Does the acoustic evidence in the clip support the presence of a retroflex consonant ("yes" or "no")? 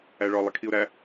yes